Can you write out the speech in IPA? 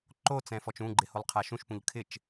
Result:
ǃ o t͡s ɛ̃ f ɔ t͡ʃ ũ ɡ͡ǃ ɪ h o lˠ qʰ a ʃ ũ ʃ p ũ ʎ kʰ ɪ t͡ʃ

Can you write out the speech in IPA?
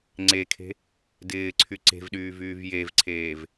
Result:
ŋ͡ǀ e kʰ e̤ | d ɪː ǀʰ y ǀ e̤ v ɗ yː v yː v j e v ǀʰ eː v

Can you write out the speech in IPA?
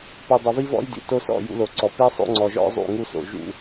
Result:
p u˨ dˤ ɘ˨ v i˦ v ɔ̰˦ j d ḭ˨ t o˦ s ɔ̰˦˨ j ṵ˦ l o˨ ǀ ɔ˨ p i˦ sˤ o̰˦ ŋ͡ǀ ɔ˨ ʒ ɔ̰˦ zˤ ṵ˦˨ ŋ u˦ s o̰˨ ʒ ṵ˦

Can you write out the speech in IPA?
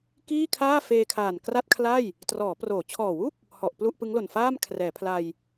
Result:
k iː˥˩ kʰ aː˥˩ f eː˧ kʰ aː˨˩ n k r a˥˩ t̚ kʰ l a˥˩ j | t r ɔː˩˦ p r oː˩˦ t͡ɕʰ ɔː˨˩ w u˥˩ k̚ | h ɔ˨˩ ʔ p l u˥˩ ʔ p ɯ˦˥ ŋ l o˨˩ n f aː˥˩ m kʰ r ɛː˩˦ pʰ l a˧ j

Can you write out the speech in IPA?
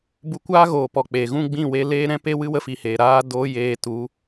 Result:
b u˧ kʷ aː˦ ɣ oː˨ p ɔ˨ k͡p e˨ ɣ ũ˦ ɡ͡b ĩ˦˨ w e˧ l eː˦ ɾ ɛ̃˦ p e˦ w ɨ˦ w ə˦ f i˧ h eː˨ ɾ aː˦ d oː˦ j eː˧ t u˨˦

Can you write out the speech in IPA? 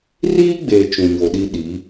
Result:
r iː˦ ɡ͡b e˨ t͡ʃ ũ˨ ɲ o˨ ɗ i˦ ɗ i˨˦

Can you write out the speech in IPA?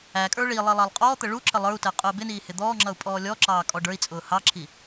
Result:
æ kʼ ə˞ ɭ i lˠ i lˠ ɑ lˠ qʼ ɔː t̪ ə ɭ u ǁ ə lˠ ə˞ u̯ t ɛ qʼ ʊː b ɪ n iː h ɪ d̪ ɔː ŋ͡ǁ ʌ u̯ pʼ ɔː lʲ ɔ ǁ ɑː kʼ ɔ ɖ ə˞ i̯ t͡sʼ ʊː h ɑ ǁʰ i

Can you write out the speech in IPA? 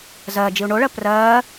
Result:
z ɜ d͡ʒ i u̯ ɳ o ɭ ɜ p r ɜː

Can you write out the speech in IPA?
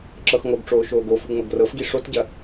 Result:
ǁ ɤ x ŋ o ɡ ʈ͡ʂ oː ʃ oː ɡ o f ɨ ŋ͡m ɤ ɡ r ɤ f ɡ i ʂ o t ɟ ɐ

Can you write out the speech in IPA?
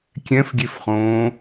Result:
kʲ ɛ̃ f ɡʲ e f χ õː

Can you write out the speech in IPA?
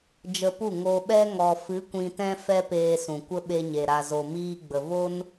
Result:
d͡ʒ ə˧ p u˦˨ ŋ o˧ ɓ ɛ˦ ŋ ɔ˨ f ɨ˨˦ kʷ ĩ˨ t ɛ̃˧ f ɛ˦ p eː˧ s ũ˨ kʷ ə˦ ɓ e˧ ɲ e˨ ɾ a˨ z o˨ m iː˧ ɡ͡b ə˨ v o˦ n

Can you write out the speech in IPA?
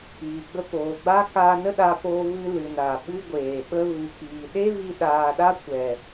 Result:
j i˨ ɡ͡b ə˧ p oː˨ ɡ͡b a˦ k aː˧ n ə˦ ɗ a˧ p oː˧ v ɨ˧ l ɨ˨ n a˨ ɓ ɨ˦ ɡʷ eː˨ ɓ ə˧ v ɨ˨ k iː˨ ɗ e˦ v i˧ ɗ aː˧ ɗ a˦ kʷ ɛ˨

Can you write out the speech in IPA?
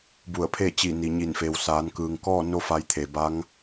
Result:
b u˧˩ ə̯ pʰ e˥˨ t͡ɕ i˧˩ n i˩ ɲ i˧˩ n f e˩˧ w s aː˩˧ n k ɯː˩ ŋ k ɔː˥˨ n o˧ f a˩˧ j t̪ʰ e˩ b aː˧˥ ŋ

